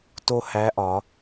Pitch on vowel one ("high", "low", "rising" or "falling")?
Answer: high